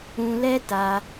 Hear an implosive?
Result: no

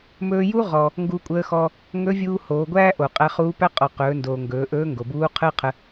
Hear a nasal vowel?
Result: no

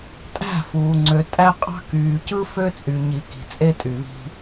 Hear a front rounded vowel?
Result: yes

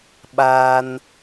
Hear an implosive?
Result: yes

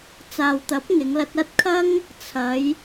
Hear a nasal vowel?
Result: no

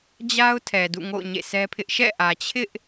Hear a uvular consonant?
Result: no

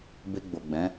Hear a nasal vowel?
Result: yes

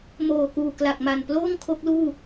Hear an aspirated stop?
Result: yes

